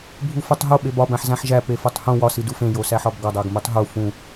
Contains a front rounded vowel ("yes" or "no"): no